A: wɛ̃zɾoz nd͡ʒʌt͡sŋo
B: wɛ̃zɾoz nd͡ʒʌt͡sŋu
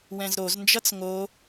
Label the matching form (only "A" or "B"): A